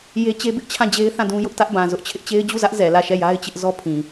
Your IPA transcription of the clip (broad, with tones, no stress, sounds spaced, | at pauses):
j e˦ t͡ɕ e˦ b ɪ˦ ʔ t͡ɕʰ ã˦˨ d͡ʑ e˦ ɪ̯ θ ã˦˨ d ũ˦ j ʊ˦ ʔ t ä˦ ʔ b ã˨ z ʊ˦ ʔ t͡ɕʰ ɪ˦ ʔ t͡ɕ e˦ ɪ̯ d͡ʑ u˦˨ z ä˦ ʔ z ɛ˨ l ä˦˨ ʃ ɛ˦˨ j a˦ ɪ̯ t͡ɕ ɪ˦ ʔ z ɔ˦ pʰ ĩ˨